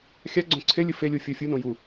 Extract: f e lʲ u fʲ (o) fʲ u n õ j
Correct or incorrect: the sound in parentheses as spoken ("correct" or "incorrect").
correct